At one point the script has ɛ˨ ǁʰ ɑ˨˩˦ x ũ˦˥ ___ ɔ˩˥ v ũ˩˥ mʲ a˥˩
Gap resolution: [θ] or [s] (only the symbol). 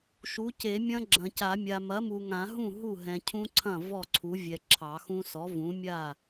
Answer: s